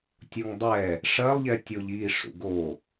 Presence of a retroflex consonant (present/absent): present